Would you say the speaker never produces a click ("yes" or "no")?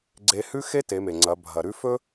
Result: no